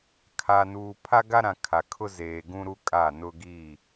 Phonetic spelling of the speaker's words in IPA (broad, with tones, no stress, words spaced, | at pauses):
kʰa˨nuː˨ pʰa˦ɡa˦ɾã˨ kʰa˨kʰʊ˦ zeː˨ ɡũ˦ɾu˦kʼa˦˨ nʊ˦ɡi˦˨